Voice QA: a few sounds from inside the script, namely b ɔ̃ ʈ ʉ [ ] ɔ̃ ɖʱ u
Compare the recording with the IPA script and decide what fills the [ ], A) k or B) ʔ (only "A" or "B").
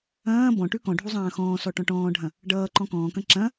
A